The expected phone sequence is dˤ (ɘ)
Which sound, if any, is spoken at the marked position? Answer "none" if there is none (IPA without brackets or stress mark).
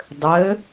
ɘ